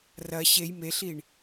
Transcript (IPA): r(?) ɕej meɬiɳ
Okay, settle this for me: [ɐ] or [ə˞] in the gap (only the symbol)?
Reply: ɐ